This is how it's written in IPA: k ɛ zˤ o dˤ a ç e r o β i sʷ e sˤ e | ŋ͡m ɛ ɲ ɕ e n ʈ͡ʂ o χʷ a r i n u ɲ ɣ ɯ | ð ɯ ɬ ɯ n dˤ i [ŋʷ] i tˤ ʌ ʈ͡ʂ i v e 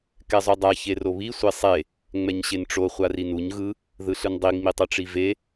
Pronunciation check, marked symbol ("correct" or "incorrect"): incorrect